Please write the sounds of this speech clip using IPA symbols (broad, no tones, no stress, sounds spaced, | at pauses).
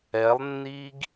ɛ lˠ nː i ɡ